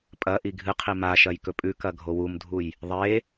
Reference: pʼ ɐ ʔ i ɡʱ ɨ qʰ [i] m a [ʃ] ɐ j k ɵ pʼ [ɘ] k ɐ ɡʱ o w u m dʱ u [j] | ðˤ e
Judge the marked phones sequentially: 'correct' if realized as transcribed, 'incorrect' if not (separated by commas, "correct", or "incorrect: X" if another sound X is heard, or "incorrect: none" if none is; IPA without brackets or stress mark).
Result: correct, correct, incorrect: ʉ, correct